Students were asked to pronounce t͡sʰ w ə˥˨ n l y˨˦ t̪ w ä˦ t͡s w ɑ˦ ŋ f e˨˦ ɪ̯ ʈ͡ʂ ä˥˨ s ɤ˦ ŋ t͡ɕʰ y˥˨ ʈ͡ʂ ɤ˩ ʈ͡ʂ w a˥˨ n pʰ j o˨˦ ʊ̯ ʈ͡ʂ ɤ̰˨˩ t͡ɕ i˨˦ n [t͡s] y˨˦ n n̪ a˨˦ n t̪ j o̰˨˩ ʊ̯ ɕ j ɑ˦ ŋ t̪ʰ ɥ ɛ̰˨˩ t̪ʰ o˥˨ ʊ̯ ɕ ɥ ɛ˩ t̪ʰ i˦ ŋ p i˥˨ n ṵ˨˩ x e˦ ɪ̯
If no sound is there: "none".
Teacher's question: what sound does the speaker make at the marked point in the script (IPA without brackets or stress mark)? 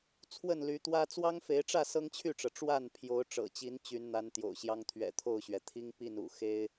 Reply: t͡ɕ